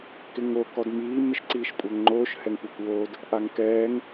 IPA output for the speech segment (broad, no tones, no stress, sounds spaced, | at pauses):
k ɪ ŋ o k ɔ d m iː m ɪ ʃ ǀ iː ʃ kʷʼ æ ŋ ŋ͡ǃ oː ʃ h ɛ ŋ kʷ æ kʷ w oː d | ʔ a ŋ k ɛː ŋ